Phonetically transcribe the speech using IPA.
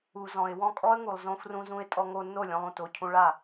u˩ z ɔ̃˩ ɪ̯ w ɔ̃˥˩ kʼ ɔ˥ ə̯ ŋ u˩ lˠ z õ˧ f r ũ˧ z ũ˧ ɪ̯ tʼ ɔ˧ ŋ o˧ nː o˥˩ lʲ õ˧ lˠ ũ˩ t o˥˩ cʰ ũ˧ ɭ a˥˩

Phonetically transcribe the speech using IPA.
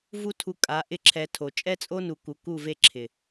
v u˦ tʰ u˧ kʼ a˨˦ ʔ ɪ˦ ǁʰ ɛ˧ tʰ o˨ t͡ʃʼ ɛ˦ t͡sʼ o˦ n u˨ k u˨ k u˦˨ v e˦ ǁʰ ɪ˨

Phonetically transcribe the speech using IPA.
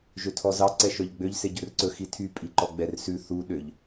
ʒ ø tʰ ɔ z ɑ ǀ ɛ ʃ œ ʎ ɡ͡b ø ʎ s e ɟ ɵ r ǀ ɵ x i tʰ y pʼ i ǃ ɔ ɡ͡b ɛ r s ʉ θ u ɗ ø ʎ

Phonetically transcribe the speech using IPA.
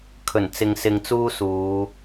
kʰ ɵ˨˩ n t͡s ɪ˨ ŋ s ɪ˧ ŋ t͡s uː˥ s uː˨˧

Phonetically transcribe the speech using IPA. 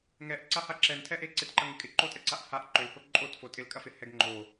ŋ ɛ ʔ ǀ a h a ǁ ɛ n tʰ ɛ ʔ e ǀ ɪ t ǃ ɐ ŋ ɪ kʼ ɪ ǃ o tʼ ɛ ǀ a ʔ h a ʔ ǃ ʏ l h o ǃʼ o t f o tʼ ɪ l kʼ ɐ f ɪ h ɛ ɡ ŋ͡ǃ o

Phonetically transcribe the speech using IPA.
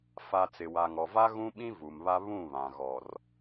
f a˨ t͡s ɪ˨ w a˨ ŋ ɔ˨ v a˦ ɣ ũ˦ ɓ ĩ˦ v u˨ m β a˦ β ũ˦˨ β ã˨ ɣ ɔ˨ r

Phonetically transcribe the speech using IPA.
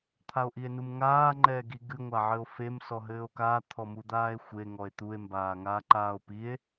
t̪ʰ a o̯ ʔ i e̯ n u m ŋ aː ŋ͡ǃ ɛː ɡ i ɡ ɨ ŋʷ a ʕ ɘ o̯ f e m s ɔ ɦ ɘː o̯ k aː t̪ʰ ɔ m u d̪ aː e̯ xʷ e ŋ ɔ e̯ t̪ u e̯ m b aː ŋ aː ǃ aː o̯ p i e̯

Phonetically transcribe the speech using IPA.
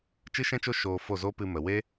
t͡ʃ ɨ˦ ʃ ɛ̃˦ t͡ʃ o˦ ʃ oː˧ f o˦˨ z o˦ p ɨ˧ m ə˨ w e˦

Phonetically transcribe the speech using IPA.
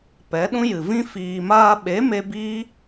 p ɛ˨˦ ɗ ũ˦ j ɨ˨ v ĩ˦ f iː˨ m aː˧ ɓ e˨˦ m e˧ b i˦

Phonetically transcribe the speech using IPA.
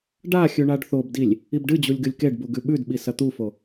ɖ a xʲ ʉ ɳ a ɖ θ o b d i lʲ | i b ɖ ɨ d͡ʑ u lʲ ɡ ɨ lʲ k e ɖ b u ɡ ʉ ɓ ʉ d ɓ i s ɐ t̪ u f o

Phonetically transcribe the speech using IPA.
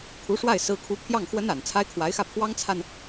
kʰ u˧˥ ʂ w a˥˩ ɪ̯ s ɹ̩˥ kʰ u˥ pʰ j ɑ˥˩ ŋ x w ə˥ n a˨˩ n t͡sʰ a˥ ɪ̯ kʰ w a˧˥ ɪ̯ x ä˥˩ pʰ w ɑ˥ ŋ t͡sʰ a˨ n

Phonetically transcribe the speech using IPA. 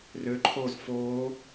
r ø ǃʰ oː z f oː

